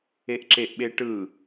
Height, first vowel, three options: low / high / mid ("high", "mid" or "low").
mid